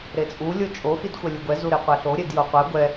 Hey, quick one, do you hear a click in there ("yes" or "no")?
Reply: no